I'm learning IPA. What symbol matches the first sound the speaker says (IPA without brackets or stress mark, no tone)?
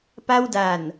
p